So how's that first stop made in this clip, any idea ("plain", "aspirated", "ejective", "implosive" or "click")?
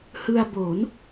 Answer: plain